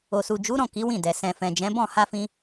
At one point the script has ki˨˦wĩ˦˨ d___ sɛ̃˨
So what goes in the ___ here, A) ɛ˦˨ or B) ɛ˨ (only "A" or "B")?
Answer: B